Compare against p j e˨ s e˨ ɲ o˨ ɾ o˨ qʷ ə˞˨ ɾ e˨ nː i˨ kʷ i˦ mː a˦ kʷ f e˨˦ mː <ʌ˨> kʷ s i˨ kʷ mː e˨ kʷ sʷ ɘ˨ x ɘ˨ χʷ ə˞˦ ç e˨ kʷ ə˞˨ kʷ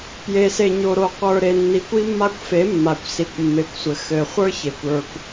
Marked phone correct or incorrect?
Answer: incorrect